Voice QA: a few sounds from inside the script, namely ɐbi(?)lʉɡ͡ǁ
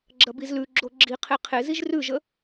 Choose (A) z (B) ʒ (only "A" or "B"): A